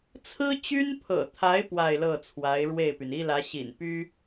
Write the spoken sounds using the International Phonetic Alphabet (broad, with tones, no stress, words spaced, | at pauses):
t͡sʰɹ̩˥t͡ɕy˥npʰɤ̰˨˩t̪ʰa˧˥ɪ̯ pwa˥˧ɪ̯lɤ˥˩t͡sʰwa˧˥ɪ̯ ɻwe˥˩ɪ̯py˩n i˥lä˧˥ɕḭ˨˩n py˥